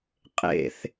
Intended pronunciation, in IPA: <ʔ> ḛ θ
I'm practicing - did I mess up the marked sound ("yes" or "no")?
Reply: yes